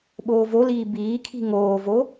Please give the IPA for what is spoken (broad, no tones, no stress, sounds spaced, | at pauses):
ɓ oː v o l iː b iː kʰ i̤ ŋ oː v o